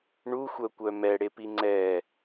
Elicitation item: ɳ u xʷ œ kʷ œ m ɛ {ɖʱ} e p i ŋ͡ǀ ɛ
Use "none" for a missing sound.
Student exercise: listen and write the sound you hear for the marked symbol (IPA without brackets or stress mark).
ɽ